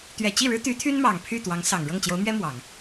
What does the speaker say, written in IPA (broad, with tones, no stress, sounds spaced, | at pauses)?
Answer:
t̪ ɥ ɛ˨˩ t͡ɕ i˥˩ ɻ ɻ̩˥ t̪ y˧˥ t̪ʰ y˥ n m ɑ˨˩ ŋ pʰ y˥˩ t̪ w ɑ˧˥ ŋ s ɑ˨˩ ŋ ɻ ɤ˥˩ ŋ t͡ɕ j o˧˥ ʊ̯ m ɥ ɛ˥ m w ɑ˨˩˦ ŋ